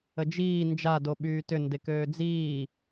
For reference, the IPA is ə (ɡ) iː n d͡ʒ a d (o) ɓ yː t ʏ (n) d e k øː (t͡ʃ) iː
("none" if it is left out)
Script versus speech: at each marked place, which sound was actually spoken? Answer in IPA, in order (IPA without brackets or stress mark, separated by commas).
d͡ʒ, o, n, d͡z